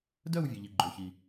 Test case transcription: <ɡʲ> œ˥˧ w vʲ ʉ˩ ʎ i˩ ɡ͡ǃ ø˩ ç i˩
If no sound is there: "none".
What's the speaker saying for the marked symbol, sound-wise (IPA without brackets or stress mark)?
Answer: d